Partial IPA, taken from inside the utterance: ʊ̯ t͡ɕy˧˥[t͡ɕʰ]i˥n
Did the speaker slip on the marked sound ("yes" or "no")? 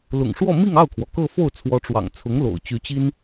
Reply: yes